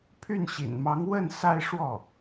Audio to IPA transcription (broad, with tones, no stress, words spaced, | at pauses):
pʰy˥˩nɕḭ˨˩nmɑ˧˥ŋ wə˥˩n sa˥ɪ̯ʂwɔ˥˩